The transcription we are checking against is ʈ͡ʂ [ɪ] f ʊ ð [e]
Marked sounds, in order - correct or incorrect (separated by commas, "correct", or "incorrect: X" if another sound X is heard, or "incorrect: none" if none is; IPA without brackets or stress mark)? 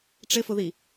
correct, incorrect: i